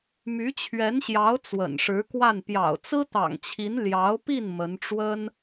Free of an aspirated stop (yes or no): no